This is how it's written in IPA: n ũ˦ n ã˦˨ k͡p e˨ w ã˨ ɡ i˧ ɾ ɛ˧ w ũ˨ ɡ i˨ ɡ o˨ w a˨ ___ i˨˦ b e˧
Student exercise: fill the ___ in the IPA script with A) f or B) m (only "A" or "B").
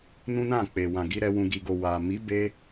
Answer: B